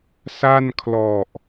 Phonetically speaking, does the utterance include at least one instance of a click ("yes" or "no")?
no